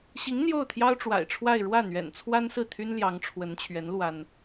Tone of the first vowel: rising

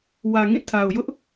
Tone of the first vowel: low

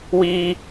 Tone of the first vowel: high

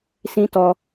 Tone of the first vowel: high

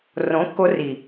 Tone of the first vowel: rising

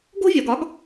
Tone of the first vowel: high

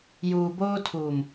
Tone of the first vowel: low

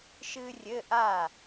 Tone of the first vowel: high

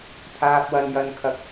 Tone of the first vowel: high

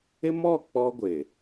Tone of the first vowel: high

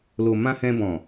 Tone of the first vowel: low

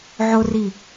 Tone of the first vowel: high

